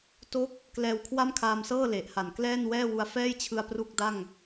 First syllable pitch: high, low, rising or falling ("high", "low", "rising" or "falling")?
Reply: falling